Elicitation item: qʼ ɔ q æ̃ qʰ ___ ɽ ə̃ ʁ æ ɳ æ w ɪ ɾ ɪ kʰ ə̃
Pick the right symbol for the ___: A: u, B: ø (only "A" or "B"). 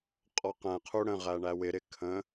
A